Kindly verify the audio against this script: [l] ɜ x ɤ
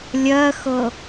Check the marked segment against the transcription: incorrect: lʲ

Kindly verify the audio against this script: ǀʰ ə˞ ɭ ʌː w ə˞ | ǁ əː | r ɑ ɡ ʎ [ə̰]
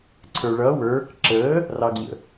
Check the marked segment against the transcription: correct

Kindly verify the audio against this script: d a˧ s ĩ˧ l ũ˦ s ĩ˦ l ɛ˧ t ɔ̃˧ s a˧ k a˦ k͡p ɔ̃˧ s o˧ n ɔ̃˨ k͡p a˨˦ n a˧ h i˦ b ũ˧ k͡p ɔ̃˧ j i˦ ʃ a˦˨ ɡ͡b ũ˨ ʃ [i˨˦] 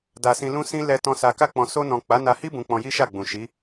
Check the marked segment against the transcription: correct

